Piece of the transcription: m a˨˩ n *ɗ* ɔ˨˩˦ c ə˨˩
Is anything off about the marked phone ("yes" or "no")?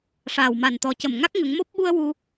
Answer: yes